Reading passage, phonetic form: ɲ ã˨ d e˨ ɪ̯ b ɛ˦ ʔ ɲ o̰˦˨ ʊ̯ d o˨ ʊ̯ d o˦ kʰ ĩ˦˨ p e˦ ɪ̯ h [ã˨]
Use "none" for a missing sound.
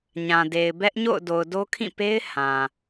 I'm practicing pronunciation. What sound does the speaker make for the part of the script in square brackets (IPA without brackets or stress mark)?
ã˨